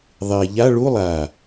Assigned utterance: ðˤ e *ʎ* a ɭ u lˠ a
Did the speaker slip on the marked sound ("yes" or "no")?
no